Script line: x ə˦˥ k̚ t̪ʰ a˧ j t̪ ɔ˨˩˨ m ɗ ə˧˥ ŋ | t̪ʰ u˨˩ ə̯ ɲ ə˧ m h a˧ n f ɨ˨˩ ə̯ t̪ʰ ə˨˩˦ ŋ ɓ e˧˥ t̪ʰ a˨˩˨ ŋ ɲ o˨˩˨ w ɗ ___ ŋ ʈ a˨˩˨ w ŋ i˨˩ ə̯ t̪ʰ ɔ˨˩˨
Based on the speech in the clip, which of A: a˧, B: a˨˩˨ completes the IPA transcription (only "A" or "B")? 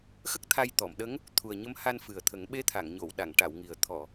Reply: B